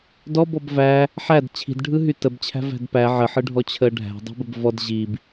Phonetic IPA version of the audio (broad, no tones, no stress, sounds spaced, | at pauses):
d ɔ b ɔ b v æ | ħ æ d t͡ɕʰ i̤ d ɖʱ ɯ ɦ y t ə b t͡ɕʰ æ̤ v æ̤ d p æ ʕ ə ħ ɯ ɖʱ ɔ t͡ɕʰ əː ɖʱ æ̤ dˤ i̤ b ə b v ɔ d ʑ i b